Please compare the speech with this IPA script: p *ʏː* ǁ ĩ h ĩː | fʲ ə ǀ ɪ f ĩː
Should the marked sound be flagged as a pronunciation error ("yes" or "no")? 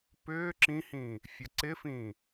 no